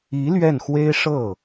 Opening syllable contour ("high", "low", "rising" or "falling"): rising